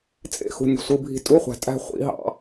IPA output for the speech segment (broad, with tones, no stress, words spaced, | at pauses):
t͡sʼḛ˥˧xṳ˨ nʲṳ˨sʷɯ˧˥˧bʱi̤˥˧ tʼu˧˥˧χʷæ̤˨ tʼæ̤˥˧ χʷḭ˨˥ɦɑ̰˧˥˧